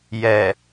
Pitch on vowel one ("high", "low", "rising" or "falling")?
low